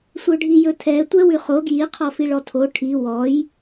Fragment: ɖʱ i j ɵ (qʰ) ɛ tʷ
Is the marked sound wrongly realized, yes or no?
yes